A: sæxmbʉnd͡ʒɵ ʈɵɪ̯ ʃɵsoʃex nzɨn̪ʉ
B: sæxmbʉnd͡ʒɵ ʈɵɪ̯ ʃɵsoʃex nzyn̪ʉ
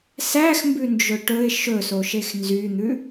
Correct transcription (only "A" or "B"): B